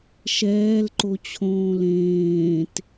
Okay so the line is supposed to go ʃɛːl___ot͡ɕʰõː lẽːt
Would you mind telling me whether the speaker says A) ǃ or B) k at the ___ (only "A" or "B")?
A